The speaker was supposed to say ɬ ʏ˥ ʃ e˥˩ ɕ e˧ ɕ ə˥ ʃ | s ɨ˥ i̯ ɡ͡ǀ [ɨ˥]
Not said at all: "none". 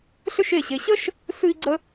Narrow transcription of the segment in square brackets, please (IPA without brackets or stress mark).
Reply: ə˥